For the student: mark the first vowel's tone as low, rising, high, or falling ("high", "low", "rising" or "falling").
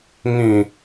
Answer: low